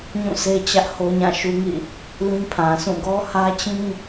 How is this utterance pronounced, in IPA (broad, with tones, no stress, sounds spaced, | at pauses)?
ɲ ũ˦˨ s e˦ t͡ɕ ä˦ ʔ h o˦ ɲ ã˦˨ ʃ u˦ ŋ ḭ˦˨ | l ĩ˦ pʰ ã˨ s ũ˦˨ ɡ ɔ˦ h ä˦ t͡ɕ ĩ˦